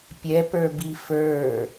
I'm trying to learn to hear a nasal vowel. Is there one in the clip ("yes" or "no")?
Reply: no